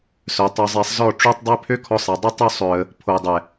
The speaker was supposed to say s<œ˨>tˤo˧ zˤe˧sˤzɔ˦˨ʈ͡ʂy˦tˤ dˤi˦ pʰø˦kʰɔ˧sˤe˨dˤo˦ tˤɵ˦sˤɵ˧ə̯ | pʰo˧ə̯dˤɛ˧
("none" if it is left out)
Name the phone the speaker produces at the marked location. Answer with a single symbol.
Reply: œ˨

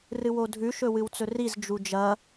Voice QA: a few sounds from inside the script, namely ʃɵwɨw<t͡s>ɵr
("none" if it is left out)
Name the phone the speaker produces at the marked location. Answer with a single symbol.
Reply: t͡s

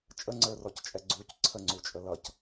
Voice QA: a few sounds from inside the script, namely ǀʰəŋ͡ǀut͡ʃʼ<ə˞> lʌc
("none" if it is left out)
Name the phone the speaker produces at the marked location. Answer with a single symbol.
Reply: ə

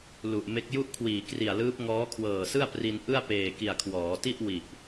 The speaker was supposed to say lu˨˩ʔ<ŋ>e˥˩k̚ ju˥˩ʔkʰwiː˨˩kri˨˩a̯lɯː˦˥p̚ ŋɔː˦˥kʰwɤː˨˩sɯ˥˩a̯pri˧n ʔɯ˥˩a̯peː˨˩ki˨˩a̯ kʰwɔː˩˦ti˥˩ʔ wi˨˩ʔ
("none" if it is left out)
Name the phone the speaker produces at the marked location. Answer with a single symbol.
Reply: m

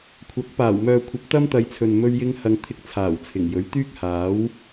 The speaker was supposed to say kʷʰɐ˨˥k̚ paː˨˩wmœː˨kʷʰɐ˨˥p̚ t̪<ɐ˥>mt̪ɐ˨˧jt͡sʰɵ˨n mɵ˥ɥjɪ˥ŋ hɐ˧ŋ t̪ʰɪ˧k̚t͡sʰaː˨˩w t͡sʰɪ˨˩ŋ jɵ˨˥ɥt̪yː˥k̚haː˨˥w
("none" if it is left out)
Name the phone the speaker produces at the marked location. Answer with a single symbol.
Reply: ɐ˥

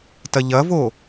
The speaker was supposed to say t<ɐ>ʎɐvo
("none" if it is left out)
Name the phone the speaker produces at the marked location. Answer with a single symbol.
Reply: ɐ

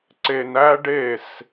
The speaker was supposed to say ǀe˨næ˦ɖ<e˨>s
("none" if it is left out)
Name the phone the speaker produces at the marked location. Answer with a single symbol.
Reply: e˦˨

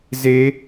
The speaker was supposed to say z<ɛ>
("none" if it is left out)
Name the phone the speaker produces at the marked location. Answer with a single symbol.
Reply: e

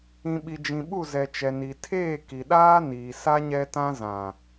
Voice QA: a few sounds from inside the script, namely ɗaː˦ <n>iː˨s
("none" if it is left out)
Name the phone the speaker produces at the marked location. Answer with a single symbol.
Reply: n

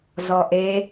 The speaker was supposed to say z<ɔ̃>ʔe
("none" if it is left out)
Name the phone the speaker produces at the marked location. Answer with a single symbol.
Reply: ɔ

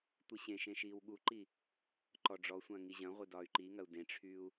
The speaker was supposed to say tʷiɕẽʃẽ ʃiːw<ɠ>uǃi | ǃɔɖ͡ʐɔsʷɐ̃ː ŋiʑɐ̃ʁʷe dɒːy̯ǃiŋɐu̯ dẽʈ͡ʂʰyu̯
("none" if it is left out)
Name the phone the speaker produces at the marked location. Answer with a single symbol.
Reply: ɠ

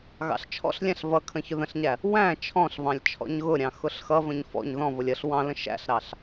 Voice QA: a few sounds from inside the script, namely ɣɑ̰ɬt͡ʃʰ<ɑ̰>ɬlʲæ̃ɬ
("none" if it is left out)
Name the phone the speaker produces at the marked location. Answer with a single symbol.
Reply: ɔ̰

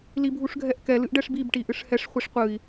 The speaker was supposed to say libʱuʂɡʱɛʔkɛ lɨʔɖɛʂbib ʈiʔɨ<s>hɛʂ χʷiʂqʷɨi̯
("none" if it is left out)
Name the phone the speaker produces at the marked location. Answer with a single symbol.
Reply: ʂ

